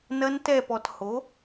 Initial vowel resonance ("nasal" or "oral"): oral